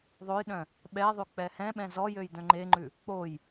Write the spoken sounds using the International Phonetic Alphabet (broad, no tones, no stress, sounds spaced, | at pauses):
ðˤ o j ɗ œ̃ | ɓ ɛ ðˤ ʉ k͡p ɛ h ɛ̃ ɓ ɛ̃ z ɔ j ø j d œ̃ ŋ͡ǃ e ŋ͡ǃ ʉ | k͡p o j